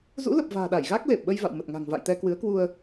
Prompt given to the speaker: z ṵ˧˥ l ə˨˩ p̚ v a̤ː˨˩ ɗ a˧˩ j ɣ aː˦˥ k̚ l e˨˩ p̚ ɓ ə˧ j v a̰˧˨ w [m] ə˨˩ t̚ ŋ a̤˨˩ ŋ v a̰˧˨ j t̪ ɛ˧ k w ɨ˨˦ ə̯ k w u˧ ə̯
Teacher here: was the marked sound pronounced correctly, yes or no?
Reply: yes